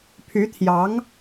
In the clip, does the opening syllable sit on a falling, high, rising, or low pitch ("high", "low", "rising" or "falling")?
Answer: rising